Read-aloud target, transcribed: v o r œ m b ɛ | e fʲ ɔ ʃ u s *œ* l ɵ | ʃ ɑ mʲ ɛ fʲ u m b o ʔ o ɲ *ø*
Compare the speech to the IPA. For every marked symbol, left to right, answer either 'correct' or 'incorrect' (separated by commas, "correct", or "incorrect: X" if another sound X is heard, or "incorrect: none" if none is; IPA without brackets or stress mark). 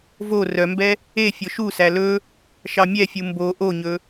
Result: incorrect: æ, incorrect: ɵ